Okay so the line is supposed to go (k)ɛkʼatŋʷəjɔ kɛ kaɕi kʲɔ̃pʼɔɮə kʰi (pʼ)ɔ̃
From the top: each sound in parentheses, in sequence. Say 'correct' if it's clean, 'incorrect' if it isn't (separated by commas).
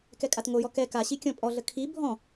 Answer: correct, incorrect